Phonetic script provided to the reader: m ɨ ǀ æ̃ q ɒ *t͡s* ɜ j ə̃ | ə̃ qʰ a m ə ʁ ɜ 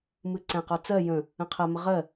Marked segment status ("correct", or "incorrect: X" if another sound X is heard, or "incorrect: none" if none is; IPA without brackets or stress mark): correct